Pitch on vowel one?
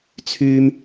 high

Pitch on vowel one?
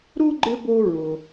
high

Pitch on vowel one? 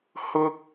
low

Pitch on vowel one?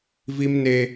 high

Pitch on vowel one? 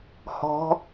rising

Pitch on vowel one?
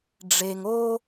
low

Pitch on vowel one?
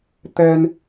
high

